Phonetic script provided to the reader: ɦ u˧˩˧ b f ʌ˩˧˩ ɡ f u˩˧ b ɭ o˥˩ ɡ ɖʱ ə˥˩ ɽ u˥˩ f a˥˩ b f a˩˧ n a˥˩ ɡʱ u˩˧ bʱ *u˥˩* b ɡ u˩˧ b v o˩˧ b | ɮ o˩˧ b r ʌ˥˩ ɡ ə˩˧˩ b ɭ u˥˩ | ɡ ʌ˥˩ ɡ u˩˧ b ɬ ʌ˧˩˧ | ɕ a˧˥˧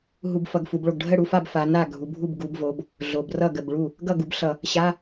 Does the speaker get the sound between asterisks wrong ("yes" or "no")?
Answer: no